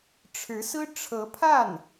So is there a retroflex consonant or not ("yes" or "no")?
yes